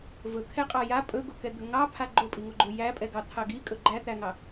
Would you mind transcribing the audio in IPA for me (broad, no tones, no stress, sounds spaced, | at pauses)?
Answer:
v ɵ kʰ ɛ qʼ ɑ j a pʼ ɵ ɡ o k ɛ d̪ ɵ ŋ ɑ pʰ a ɡ͡ǃ o pʼ i ŋ o ɡ͡ǃ o j æ pʼ ɛ ɡ ɑ t̪ʰ ɑ ɡ i kʼ ɵ ɡ͡ǃ æ t̪ æ ŋ ɑ